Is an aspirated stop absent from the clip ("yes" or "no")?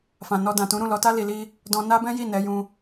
yes